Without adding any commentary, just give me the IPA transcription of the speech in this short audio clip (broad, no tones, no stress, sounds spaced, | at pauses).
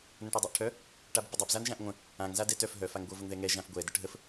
n ə̃ ʈ œ dˤ œ ʔ ʈʰ œ | ʈ a b ə b ə dˤ a b z a n ʒ ã ʔ ŋʷ ə̃ | ã ŋ z a d ɛ t œ f ɦ œ f a ŋ ɡʷ ɤ v ə ŋ ð ɛ ŋ ɛ ʒ ã f ɡʷ ɛ d ə ʈ ɦ ə f